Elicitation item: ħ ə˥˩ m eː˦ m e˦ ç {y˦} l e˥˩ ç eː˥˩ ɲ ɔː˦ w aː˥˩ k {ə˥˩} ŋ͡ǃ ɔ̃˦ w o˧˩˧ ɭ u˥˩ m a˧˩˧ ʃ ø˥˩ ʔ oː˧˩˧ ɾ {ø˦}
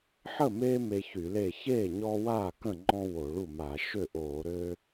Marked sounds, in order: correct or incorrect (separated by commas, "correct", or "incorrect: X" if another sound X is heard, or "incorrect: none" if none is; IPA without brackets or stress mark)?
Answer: incorrect: y˧˩˧, incorrect: ə̃˥˩, correct